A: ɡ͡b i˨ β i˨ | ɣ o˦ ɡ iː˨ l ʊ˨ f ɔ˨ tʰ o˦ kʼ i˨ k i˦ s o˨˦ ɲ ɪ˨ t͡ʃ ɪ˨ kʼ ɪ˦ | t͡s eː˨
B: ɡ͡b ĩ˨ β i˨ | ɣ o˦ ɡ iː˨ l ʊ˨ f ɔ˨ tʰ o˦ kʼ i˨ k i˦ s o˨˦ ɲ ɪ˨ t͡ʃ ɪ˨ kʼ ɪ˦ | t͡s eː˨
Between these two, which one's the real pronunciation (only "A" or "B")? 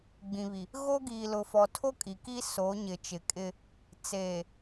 B